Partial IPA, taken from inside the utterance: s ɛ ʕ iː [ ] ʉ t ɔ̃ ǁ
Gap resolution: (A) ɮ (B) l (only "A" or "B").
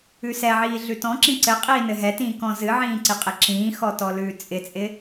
A